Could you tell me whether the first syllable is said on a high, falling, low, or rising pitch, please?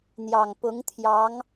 low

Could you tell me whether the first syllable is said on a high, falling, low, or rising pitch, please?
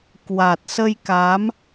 low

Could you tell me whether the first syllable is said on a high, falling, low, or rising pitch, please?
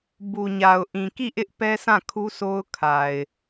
low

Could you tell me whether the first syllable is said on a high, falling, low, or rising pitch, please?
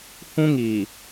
high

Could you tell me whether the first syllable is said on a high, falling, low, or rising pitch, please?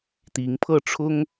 rising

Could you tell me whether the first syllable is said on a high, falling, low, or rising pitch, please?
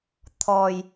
low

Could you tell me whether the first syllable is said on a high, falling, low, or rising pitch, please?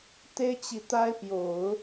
high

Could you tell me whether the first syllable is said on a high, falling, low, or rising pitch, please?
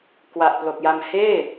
low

